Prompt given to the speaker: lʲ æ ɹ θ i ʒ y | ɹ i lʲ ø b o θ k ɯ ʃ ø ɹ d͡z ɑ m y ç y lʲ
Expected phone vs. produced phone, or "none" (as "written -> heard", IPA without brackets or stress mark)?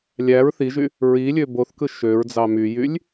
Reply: ç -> j